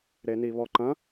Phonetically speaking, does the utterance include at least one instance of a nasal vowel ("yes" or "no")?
yes